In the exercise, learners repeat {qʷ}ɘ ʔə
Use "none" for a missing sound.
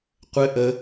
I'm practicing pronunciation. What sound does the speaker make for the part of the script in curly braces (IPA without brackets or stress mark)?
qʷ